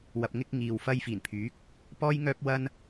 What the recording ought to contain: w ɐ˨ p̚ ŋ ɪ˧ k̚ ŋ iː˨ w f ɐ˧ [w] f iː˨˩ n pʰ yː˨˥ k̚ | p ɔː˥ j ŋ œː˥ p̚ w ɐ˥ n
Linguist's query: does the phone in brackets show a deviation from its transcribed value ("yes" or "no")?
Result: yes